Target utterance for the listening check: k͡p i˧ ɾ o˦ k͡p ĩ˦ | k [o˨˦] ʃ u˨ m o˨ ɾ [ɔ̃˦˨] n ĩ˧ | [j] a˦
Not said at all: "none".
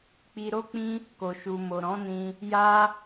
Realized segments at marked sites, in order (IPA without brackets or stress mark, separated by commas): o˨, ɔ̃˨˦, j